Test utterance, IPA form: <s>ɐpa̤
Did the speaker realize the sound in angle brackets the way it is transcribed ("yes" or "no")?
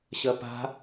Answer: no